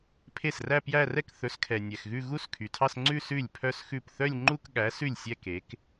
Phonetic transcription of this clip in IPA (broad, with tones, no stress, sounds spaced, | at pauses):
pʰ e˥˩ s r æ˥˧ p j æ˥˧ r ɛ˥˩ k θ ɵ˨˥ s kʰ ɛ˨ nʲ ɛ˨ x ɣ ʉ˥˧ ɣ u˥˧ s kʰ y˨ tʰ ɑ˥˧ s ŋ͡ǀ ʉ˥˧ s ʉ˥˩ lʲ pʰ œ˥˧ s x ʉ˥˩ p θ œ˥˧ lʲ ŋ͡ǃ u˥˧ k ɠ æ˨˥ s ʉ˥˩ lʲ sʲ ɛ˥˧ k e˨˥ k